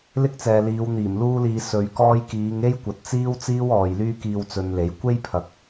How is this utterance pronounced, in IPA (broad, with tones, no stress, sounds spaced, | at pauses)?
l ɪ˥ k̚ t͡s ɛː˨ l iː˨˧ w n̪ iː˨˩ m l uː˥ l iː˧ s ɵ˨˧ ɥ k ɔː˥ j k iː˨˧ ŋ e˥ j kʷ ɐ˨ t̚ t͡s iː˥ w t͡s iː˥ w ɔː˨ j l yː˥ k iː˧ w t͡s ɵ˧ n l e˨˥ j kʷ e˥ j pʰ ɐ˨ k̚